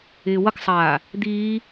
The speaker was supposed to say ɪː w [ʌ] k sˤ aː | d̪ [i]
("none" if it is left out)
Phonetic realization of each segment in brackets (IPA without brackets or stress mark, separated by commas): ʌ, iː